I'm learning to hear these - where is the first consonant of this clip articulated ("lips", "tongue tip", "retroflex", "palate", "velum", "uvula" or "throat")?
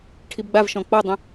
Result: retroflex